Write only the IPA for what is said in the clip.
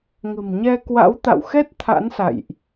ŋ ə̤˨˩ m ɲ ɛ˧ k w a̰˧˥ w t̪ a̰˧˨ w x ɛ˦˥ t̚ t̪ʰ a̰˧˥ n s a̰˧˨ j ʔ

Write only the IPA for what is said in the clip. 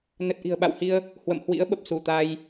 n ə˨˩ t̚ ʔ i̤˨˩ ə̯ ɓ a̰˧˨ w h i˧ ə̯ | h w ə̰˧˨ m h w ḭ˧˥ ə̯ ɓ ə˨˩ p̚ s u˧˩ t̪ a˧ j

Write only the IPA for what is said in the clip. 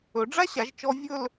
ɵ˩˧ ɖ͡ʐ a˥ ɕ a˩˧ ʒ t͡ʃ ɔ˧ vʲ ɵ˥˧ l

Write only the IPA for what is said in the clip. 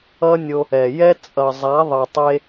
ʌ˦ nʲ o˧ | ɛ˨ j ɛ˦ t͡sʼ ʌ˨ zˤ a˨˦ ðˤ ʌ˨ tˤ e˧

